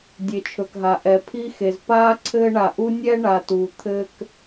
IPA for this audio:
dʲ e˧ t͡ʃʰ ɵ˧ k ɦ a˧ ʔ ɛ˧ pʰ i˥ x e˧ z p aː˥ ǀʰ ɘː˥ ɳ a˧ ʔ u˥ nʲ ɛ˥ ɳ a˧ t uː˧ t̪ʰ ɘː˥ k

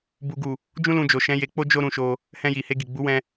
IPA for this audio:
b u˨ ɡ u˨ | d͡ʒ ũ˦ l ũ˧ d͡ʒ o˨ ʃ ɛ̃˨˦ j e˧ k͡p o˦ d͡ʒ o˦ ɾ ũ˧ ʃ o˧ | h ɛ̃˧ j i˨ h e˧ ɡ i˨ ɡ͡b u˨˦ w ɛ̃˧

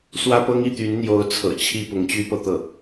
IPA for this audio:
s w ä˥ p ɤ˥ ŋ i˥˩ t̪ y˧˥ n n̪ j o˧˥ ʊ̯ t͡sʰ ɤ̰˨˩ t͡ɕʰ i˥˩ p ʊ˧˥ ŋ t͡ɕ y˥ p ɤ˨ t̪ ɤ˥˩

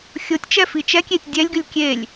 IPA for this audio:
xʲ o tʲ t͡ʃ ɛ f i t͡ʃ ɛ kʲ e tʲ dʲ ɛ lʲ ɡ ʉ lʲ kʲ e lʲ

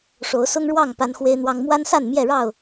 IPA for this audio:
ʂ o˨˦ ʊ̯ s ʊ˦ ŋ ɻ w ɑ˥˨ ŋ p a˦ n x w e˦ ɪ̯ n̪ w ɑ˦ ŋ m w a˦ n s a˥˨ n m j ɛ˥˨ ɻ ɑ˥˨ ʊ̯

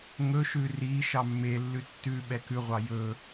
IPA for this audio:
ŋ ɵ ʃ ʉ r i ʃ ɑ mː e lː ʉ tː ʉ ɓ ɛ k ʉ ʁʷ ɑ j ɵ

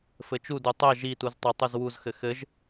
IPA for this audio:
f ɘ t͡ʃ u d u tˤ ɛ ʒ i t u z tˤ ɘ tˤ u z w u z x ɘ x ɘ ʒ

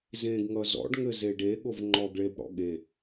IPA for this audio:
z ẽ ɡ ŋ ʌ z ɔ̰ ɖ ŋ ɘ z e ɖ e ɠ o v ŋ͡ǃ ɔ ɡ ɭ e b ɽ ɔ̰ ɠ e

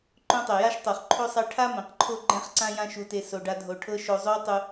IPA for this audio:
ǃ õ˦ tˤ ɛ˩ j a˥ ʃ tˤ o˩ χ ǃʰ o˥ sˤ ɛ˦ ʈʰ a˥ m ẽ˩ q ǃʰ o˦ ɡ͡ǃ ɛ̃˦ χ ǀ ã˦ j ã˦ ʃ u˨ t e˨ s o˨ ɖ a˦ dʱ o˨ ʈʰ ɤ˥ ʃ o˨ zˤ o˦ w tˤ u˨

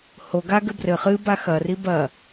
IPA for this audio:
h o ɡ a ɡ ɘ b r ɘ χ ɨ b a x ɐ r i b ɐ

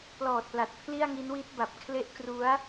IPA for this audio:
p l ɔː˨˩ t̚ p l a˨˩ t̚ pʰ l i˥˩ a̯ ŋ i˦˥ n w i˦˥ t̚ b a˨˩ p̚ kʰ l e˦˥ ʔ k r u˦˥ a̯

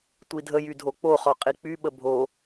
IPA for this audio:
tʷ i dʱ ə j y dʱ o k͡p o χ ɔ qʼ i k͡p y ɓ ə bʱ o

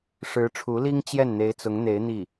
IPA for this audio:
ʂ ɻ̩˧˥ ʈ͡ʂʰ u˧˥ l i˥ ŋ t͡ɕ j ɛ˥˩ n n̪ e˧˥ ɪ̯ t͡s ʊ˧˥ ŋ n̪ e˧˥ ɪ̯ n̪ i˥˩

